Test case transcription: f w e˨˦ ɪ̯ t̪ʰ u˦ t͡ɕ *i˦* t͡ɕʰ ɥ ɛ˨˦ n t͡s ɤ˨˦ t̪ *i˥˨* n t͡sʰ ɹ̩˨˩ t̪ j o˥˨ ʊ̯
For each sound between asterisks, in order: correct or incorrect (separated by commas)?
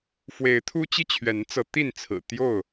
correct, correct